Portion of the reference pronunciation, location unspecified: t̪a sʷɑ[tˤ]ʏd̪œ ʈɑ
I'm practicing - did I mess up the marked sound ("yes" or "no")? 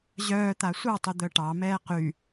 no